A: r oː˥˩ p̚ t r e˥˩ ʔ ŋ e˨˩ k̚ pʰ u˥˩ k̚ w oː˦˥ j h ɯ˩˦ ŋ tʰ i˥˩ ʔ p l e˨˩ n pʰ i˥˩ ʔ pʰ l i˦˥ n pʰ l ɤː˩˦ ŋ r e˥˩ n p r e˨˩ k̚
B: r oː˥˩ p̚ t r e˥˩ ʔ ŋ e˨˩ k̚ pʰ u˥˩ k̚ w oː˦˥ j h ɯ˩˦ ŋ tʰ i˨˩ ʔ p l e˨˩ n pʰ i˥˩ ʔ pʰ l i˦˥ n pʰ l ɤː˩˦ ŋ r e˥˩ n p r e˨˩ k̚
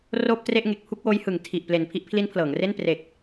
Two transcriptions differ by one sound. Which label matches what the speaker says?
B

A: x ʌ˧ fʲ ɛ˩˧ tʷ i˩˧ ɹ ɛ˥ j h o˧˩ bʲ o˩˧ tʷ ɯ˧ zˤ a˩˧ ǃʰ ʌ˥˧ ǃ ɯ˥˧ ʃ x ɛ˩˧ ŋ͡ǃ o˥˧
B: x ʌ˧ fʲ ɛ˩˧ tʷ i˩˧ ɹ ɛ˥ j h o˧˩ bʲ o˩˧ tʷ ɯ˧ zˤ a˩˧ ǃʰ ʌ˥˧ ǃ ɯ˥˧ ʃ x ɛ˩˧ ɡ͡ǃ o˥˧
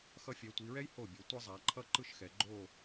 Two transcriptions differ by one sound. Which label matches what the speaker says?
B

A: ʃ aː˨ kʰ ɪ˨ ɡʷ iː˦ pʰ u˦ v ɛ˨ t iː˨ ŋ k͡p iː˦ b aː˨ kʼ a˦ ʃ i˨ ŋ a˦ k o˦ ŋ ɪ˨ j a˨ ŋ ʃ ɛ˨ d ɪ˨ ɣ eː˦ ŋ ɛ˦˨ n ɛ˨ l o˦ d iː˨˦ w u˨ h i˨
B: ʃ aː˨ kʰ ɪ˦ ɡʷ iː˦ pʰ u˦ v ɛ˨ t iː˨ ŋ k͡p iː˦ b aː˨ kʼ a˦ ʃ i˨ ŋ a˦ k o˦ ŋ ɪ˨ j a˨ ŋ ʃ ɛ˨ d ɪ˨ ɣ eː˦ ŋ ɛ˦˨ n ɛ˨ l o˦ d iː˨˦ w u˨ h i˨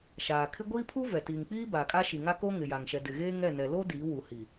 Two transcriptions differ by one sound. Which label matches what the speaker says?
B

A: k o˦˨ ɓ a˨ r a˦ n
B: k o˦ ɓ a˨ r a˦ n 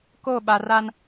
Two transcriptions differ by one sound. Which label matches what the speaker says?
A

